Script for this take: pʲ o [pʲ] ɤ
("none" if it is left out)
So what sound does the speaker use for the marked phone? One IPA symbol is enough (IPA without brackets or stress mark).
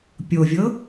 vʲ